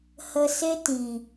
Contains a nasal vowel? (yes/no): yes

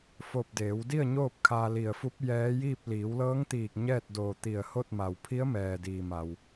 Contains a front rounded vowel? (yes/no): no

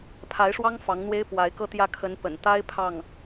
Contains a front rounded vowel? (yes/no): no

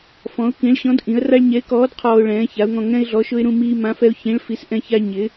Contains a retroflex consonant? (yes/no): yes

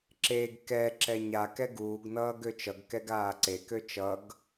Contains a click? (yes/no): yes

